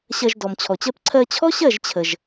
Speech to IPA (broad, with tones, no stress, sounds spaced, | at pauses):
ɕ ɜ˧ ʒ d ɔ˨ m t͡ɕʰ ɔ˨ t͡ɕ ɜ˦ p ǀʰ ɜ˧ t͡ɕʰ ɔ˦ ɕ ɜ˦˨ ʒ t͡ɕʰ ə˨ ʒ